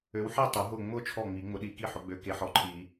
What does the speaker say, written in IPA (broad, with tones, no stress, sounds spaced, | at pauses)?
ø˨˦ w ħ i˥˨ tˤ ʊ˨˩˦ ɦ ʊ˥˨ ŋ͡m ʊ˥˨ t͡ʃʰ ɔ˥˨ ŋ͡m i˨˩˦ ŋ͡m ʊ˨˦ ɗ i˨˩˦ k i˥˨ ħ ʊ˨˦ ɡ͡b ø˨˦ k e˨˦ ħ ɔ˨˦ ǃʰ i˨˩˦